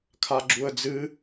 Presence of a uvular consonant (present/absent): absent